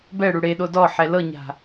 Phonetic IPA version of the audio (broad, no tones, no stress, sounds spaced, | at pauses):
b ɛ ɽ u ɽ e ɗ o d ɔ ħ ɛ l ɤ ɲ a̤